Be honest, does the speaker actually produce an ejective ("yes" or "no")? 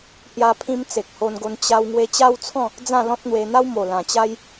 no